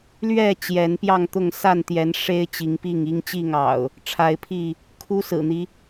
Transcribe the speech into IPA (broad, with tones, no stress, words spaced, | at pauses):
lɥɛ˥˨ t͡ɕjɛ˨˦npjɑ˥˨ŋt̪ʊ˥˨ŋ sa˥˨nt̪jɛ˨˦nʂe˦ɪ̯ t͡ɕi˨˦ŋpi˥˨ŋi˦ŋ t͡ɕi˥˨ŋɑ̰˨˩ʊ̯ | ʈ͡ʂʰa˨˦ɪ̯pʰi˥˨ | kʰu˦sɹ̩˨˩n̪i˦